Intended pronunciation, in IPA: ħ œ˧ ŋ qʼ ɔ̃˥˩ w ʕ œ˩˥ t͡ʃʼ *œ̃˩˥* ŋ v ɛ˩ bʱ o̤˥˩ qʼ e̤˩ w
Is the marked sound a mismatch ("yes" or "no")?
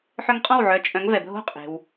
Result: no